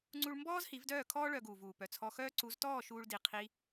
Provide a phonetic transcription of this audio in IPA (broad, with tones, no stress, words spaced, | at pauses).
ŋ͡ǀu˧ɭmbɔː˦z hi˨˦vdœː˦˨kʰɔː˦ ɭœ˧ɡuː˨vuː˨ pœ˨t͡sʰɔ˧xœː˦ ǀu˨˦ztɔː˦˨ ʃuː˦ɭdi˧ qʰi˧